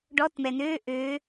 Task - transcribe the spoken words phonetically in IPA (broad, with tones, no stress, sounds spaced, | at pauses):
ɖ ɔ˧˥˧ t m ɛ˩ n øː˧˥˧ ʔ ø˩˧